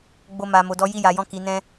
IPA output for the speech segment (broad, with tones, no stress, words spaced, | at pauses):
ɡ͡bo˧ma˨mo˨dɔ˨˦ ji˦˨ja˨jɔ̃˧ ki˨nɛ̃˧